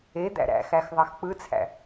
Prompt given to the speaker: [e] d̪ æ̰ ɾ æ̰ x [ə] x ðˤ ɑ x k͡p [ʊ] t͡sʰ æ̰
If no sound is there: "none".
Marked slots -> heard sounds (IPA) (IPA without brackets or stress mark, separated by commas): e, æ, ɯ